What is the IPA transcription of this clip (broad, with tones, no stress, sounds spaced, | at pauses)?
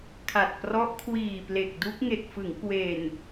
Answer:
kʰ a˨˩ t̚ p r ɔ˦˥ ʔ kʰ w iː˨˩ p l e˨˩ k̚ d u˦˥ k̚ ŋ e˨˩ k̚ f ɯ˩˦ ŋ k w e˨˩ n